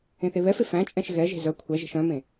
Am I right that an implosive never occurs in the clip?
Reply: yes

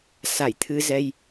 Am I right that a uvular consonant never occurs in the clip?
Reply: yes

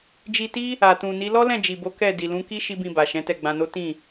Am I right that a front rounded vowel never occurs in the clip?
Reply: yes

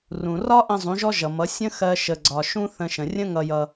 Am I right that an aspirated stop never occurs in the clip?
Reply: yes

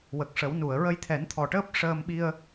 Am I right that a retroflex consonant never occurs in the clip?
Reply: no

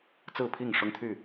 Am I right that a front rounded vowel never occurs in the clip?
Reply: no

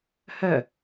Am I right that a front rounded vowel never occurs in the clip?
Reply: no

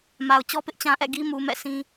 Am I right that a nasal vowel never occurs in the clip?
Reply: no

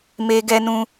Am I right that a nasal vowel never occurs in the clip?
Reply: no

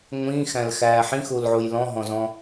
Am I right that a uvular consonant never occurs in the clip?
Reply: yes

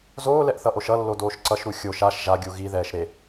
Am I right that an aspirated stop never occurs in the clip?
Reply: yes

